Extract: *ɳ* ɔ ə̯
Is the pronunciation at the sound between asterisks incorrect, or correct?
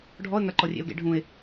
incorrect